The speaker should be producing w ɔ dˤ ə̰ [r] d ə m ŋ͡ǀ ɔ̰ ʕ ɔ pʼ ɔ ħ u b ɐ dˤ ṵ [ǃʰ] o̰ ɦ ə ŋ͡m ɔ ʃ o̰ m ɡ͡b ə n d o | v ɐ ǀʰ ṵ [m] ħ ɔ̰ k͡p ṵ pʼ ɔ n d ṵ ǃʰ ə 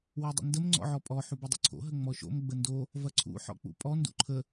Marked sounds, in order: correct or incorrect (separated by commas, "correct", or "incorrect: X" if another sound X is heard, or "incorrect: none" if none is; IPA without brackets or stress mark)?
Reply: incorrect: n, incorrect: ǀʰ, incorrect: none